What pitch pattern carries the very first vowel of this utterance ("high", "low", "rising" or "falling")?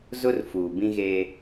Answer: high